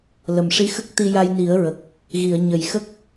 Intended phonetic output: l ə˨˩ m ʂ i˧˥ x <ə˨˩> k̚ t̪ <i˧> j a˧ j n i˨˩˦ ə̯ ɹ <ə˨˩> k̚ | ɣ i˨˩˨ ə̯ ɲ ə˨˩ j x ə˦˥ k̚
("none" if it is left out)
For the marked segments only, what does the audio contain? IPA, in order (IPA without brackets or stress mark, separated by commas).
ə˦˥, i˧, ə˨˩